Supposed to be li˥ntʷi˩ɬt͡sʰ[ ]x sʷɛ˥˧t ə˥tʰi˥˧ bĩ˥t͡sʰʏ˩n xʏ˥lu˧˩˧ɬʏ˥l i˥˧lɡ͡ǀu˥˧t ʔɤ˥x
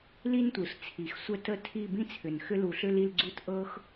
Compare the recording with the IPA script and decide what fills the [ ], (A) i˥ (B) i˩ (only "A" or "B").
B